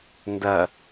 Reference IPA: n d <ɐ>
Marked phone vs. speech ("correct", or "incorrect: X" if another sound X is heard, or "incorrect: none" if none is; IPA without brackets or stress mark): correct